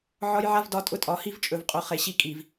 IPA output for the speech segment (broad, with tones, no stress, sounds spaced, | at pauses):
ʕ ɒ˦ j ʕ a˦ v d ɒ˦ tʼ ʊ˦ tʼ ɒ˨ h i˦ v t͡ʃʼ ɵ˨ v qʼ ʊ˨ χ e˨ ɕ i˦ kʼ i˨ v